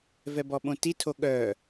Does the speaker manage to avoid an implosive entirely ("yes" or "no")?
no